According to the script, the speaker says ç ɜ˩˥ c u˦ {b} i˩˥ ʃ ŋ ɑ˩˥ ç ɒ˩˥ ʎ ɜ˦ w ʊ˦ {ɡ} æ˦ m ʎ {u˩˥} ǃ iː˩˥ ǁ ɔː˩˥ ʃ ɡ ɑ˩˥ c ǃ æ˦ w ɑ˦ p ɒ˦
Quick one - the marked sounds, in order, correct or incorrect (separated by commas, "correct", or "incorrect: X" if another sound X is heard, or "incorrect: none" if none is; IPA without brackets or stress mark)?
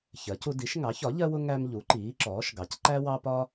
incorrect: d, incorrect: ŋ, correct